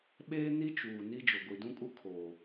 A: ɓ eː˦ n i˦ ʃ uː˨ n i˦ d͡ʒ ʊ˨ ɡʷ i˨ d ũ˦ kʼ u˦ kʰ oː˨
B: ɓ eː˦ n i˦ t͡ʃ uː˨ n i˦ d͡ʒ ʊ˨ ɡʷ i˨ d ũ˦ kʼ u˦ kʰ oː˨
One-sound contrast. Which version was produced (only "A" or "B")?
B